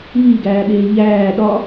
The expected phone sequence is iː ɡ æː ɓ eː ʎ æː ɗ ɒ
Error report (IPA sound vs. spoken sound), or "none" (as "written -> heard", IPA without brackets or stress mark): none